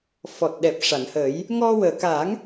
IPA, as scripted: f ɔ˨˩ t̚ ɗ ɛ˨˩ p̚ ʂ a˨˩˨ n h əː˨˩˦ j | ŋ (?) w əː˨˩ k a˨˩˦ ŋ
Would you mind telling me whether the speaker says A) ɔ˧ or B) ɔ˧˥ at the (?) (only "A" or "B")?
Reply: A